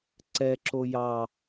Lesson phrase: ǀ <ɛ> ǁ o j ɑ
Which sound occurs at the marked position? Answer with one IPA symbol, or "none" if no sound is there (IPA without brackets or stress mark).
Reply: ɛ